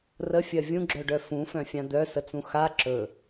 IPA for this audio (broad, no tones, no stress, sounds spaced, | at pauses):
r ə fʲ ɜ vʲ ũ ɡ͡ǁ œ ɖ œ f ũ f œ̃ fʲ ã d̪ œ s ə t͡s ũ x a ǁ ɵ